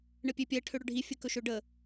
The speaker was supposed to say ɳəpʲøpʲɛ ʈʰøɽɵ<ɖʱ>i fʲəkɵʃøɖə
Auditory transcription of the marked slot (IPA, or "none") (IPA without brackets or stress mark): ɖʱ